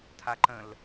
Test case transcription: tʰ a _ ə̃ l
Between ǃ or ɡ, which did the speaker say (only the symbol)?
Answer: ǃ